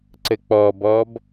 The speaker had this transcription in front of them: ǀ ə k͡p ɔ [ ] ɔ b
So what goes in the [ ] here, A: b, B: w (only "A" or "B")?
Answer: A